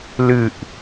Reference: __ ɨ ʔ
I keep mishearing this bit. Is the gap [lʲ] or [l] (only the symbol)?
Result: l